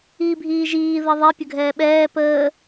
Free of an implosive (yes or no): no